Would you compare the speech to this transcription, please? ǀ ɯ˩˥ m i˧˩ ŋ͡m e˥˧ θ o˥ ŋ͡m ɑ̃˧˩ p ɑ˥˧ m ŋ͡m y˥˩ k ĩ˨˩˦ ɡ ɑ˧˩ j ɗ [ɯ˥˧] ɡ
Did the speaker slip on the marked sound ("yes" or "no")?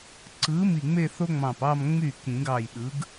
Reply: yes